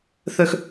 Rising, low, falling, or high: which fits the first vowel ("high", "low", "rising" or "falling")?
high